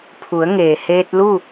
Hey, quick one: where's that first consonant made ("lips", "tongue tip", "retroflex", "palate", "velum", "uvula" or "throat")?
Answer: lips